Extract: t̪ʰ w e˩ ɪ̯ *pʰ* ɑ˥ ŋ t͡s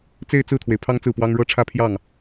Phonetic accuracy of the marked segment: correct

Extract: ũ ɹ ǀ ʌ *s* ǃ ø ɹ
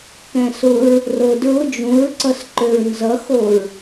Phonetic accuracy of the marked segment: correct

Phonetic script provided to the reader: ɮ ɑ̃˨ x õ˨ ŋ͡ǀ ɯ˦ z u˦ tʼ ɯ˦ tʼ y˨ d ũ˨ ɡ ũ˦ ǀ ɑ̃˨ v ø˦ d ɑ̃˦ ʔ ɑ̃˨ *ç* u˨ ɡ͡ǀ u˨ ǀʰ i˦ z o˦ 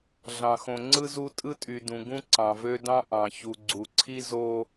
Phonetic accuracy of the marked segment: correct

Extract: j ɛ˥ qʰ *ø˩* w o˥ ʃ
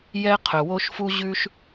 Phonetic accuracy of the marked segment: incorrect: ɵ˩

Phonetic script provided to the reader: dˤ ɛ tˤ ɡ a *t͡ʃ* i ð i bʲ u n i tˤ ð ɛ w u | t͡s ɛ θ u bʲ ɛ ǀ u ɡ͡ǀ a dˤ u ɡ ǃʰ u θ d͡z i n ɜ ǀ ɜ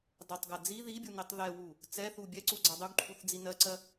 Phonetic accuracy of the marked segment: incorrect: d͡z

